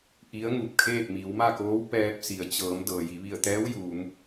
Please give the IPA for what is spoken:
ʔ i˧˥ ə̯ ŋ u˧˩ p̚ kʰ eː˥˨ p̚ m i˩˧ w m a˥˨ k oː˧˥ w p ɛː˧ p̚ s i˩ ə̯ t͡ɕ ɤː˩˧ m d ɤː˩ j i˩˧ ʋ i˧˩ ə̯ t̪ ɛː˧˥ w j uː˩˧ m

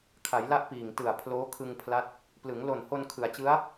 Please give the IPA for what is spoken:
kʰ a˩˦ j l a˦˥ ʔ p iː˨˩ ŋ t ɯ˨˩ a̯ pʰ l oː˦˥ kʰ ɯ˧ ŋ pʰ l a˦˥ t̚ | p l ɯ˩˦ ŋ l o˨˩ n h o˧ n kʰ ɯ˩˦ a̯ t͡ɕ ɯ˦˥ a̯

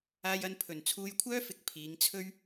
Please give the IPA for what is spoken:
aː˧ j ɐ˧ n pʰ ɵ˨˩ n t͡sʰ uː˧ j kʷʰ œː˥ f ɪ˨˥ k̚ pʰ iː˨˧ ŋ t͡sʰ ɵ˥ ɥ

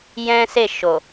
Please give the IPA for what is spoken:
j ɛ̃˦ s e˦˨ ʃ o˨

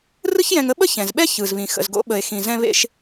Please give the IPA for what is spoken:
r ɯ˥ ç j ɛ̃˧ ŋ ə˥ ɓ ə˥ ç ɛ̃˩ z ɓ ɛ˥ ç ɯ˩ z β ĩ˩ x ə̰˩ z ɡ o̰˧ ɓ ə˩ e̯ x ĩ˩ z ɛ̃˧ β ḛ˧ ʃ

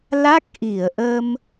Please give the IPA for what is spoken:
l a˦˥ k̚ ʔ i˧˩ ə̯ ʔ ə˧ m

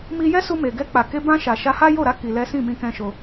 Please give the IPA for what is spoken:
m i˧ j ɛ˦ s u˧ m e˨ ɡ ɛ˧ k͡p a˨ k e˧ b ã˧ ʃ a˨ ʃ a˧ h a˦ j o˦˨ ɾ a˨˦ k i˧ l ɛ˦ s ĩ˦˨ m ĩ˧ k ɛ̃˧ ʃ o˧

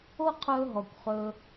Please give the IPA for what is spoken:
o˦ qʰ ɵː˧ ɦ ɔ˨ kʷ χ ɵː˧

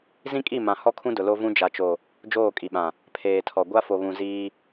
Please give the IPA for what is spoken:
z ĩ˦ kʼ i˦˨ m ã˨ h ɔ˦ kʰ ũ˦ d ʊ˨ l o˦ v ũ˦ d͡ʒ a˨ t͡ʃ o˨ | d͡ʒ oː˦˨ kʼ i˨ ɓ ã˨ | pʰ eː˨ tʰ ɔ˨ ɡʷ a˦ f o˨ β ũ˨ z iː˦

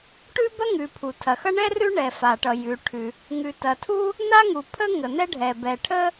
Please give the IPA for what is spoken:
ʈ ʉ˥ b ɐ˥ ŋ ʉ˩ pʰ u˩ tʰ ɐ˩ x ʌ˥ ɳ ɛ˥ r ʉ˥ ɳ ɛ˩ f a˩ ʈ ʌ˩ j ʉ˩ ʈʰ ʉ˩ | ŋ ʉ˩ t ɐ˩ tʰ u˥ | n̪ a˥ ŋ u˩ pʰ ə˥ ŋ ə˩ n̪ ɛ˥ ɖʱ ɛ˩ b ɛ˩ ʈʰ ə˥

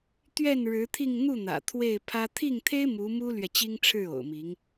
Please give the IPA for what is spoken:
t̪ ɥ ɛ˥˩ n ɻ ɻ̩˧˥ t̪ʰ i˥˧ ŋ n̪ u˥˩ n̪ ä̰˨˩ t̪ʰ w e˥˩ ɪ̯ pʰ ä˥ t̪ʰ i˥˩ ŋ t̪ʰ e˥ ɪ̯ m u˧˥ m u˥ l ɥ ɛ˨ t͡ɕ i˥ ŋ ʈ͡ʂʰ ɻ̩˥˩ o̰˨˩ ʊ̯ m i˧˥ ŋ

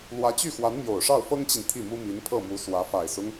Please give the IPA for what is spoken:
l w ä˧˥ t͡ɕ y˥˩ x w a˧˥ n m j o˨˩ ʊ̯ ʂ ɑ˥˩ ʊ̯ f ɤ˥ ŋ t͡ɕ i˨ n t̪ʰ i˥˩ m u˥ m i˧˥ n pʰ ɤ˥˩ m u˧˥ s w ä˧˥ f a˨˩ ɪ̯ s ʊ˦ ŋ

